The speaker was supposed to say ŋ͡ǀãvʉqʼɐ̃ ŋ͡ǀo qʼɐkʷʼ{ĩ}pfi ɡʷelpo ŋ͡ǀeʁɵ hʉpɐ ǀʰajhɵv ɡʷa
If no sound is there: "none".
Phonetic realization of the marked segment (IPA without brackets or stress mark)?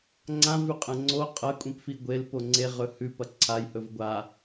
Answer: ĩ